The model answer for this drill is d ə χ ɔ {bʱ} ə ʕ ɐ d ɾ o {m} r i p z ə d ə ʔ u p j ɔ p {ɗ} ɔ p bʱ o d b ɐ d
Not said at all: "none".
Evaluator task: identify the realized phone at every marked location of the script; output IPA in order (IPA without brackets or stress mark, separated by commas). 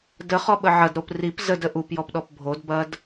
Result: ɓ, p, ɗ